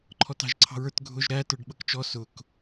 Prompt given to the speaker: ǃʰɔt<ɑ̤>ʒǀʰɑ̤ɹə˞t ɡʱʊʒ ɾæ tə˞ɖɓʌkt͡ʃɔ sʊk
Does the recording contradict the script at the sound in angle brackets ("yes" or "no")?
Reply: no